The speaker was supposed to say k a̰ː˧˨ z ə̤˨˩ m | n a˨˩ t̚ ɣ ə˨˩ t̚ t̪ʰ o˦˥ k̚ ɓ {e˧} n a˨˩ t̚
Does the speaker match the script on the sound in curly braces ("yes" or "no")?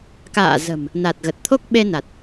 yes